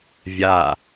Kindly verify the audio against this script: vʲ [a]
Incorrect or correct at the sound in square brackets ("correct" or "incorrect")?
correct